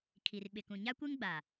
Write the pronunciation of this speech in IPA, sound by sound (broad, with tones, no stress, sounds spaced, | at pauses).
kʰ i˨ r ɓ ɪ˨ k ũ˨ ɲ a˦ kʷ e˦ ŋ ɡ͡b a˨